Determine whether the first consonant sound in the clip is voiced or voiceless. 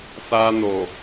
voiceless